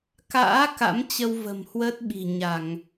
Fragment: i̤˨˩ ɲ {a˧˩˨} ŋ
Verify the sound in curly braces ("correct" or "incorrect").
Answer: correct